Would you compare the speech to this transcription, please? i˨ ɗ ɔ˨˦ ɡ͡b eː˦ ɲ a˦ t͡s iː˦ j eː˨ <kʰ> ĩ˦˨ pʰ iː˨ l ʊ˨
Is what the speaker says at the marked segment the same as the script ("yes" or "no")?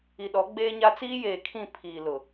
yes